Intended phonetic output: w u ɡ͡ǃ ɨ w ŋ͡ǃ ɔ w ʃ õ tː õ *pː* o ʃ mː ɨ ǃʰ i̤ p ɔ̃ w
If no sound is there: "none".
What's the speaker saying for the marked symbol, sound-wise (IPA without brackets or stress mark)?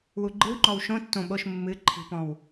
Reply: ɓ